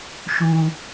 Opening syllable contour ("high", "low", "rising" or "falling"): high